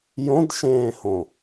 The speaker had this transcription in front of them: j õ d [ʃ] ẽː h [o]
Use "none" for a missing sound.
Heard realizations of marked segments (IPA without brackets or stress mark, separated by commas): ʃ, õ